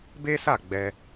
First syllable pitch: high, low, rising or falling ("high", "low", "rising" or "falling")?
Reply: high